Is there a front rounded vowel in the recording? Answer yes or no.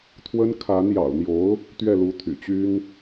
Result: yes